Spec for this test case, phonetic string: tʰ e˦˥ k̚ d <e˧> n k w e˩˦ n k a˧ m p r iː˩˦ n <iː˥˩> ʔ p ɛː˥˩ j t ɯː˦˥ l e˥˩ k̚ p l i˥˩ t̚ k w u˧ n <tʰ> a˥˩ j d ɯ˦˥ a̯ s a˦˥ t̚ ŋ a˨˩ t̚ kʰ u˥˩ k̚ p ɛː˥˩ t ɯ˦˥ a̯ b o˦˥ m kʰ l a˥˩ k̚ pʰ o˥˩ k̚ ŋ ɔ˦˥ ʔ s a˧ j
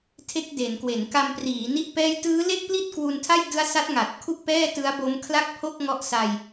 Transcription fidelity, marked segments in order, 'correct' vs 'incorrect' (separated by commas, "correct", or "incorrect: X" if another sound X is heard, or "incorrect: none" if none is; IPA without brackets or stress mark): incorrect: e˩˦, incorrect: i˥˩, correct